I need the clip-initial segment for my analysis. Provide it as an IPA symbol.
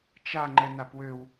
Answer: t͡ʃ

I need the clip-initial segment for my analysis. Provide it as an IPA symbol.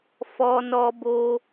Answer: f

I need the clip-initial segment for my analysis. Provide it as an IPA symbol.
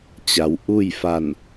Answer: t͡ɕ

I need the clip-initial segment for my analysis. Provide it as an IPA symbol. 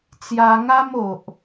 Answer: t͡s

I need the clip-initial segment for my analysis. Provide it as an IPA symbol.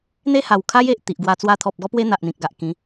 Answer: n̪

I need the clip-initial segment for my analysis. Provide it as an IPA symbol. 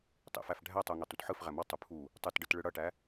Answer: tˤ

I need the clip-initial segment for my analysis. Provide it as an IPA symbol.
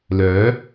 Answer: l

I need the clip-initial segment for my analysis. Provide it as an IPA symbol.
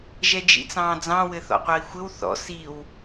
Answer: ʒ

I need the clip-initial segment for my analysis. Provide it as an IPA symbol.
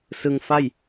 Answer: s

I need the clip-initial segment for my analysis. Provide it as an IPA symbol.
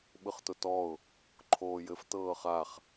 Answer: ɓ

